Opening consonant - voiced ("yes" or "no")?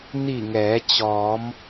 yes